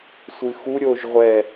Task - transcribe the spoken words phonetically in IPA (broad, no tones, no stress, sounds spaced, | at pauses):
sʷ ɨ x u ɾʲ o ʒ ʁʷ ɛ